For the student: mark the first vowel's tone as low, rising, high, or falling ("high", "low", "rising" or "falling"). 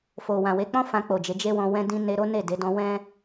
low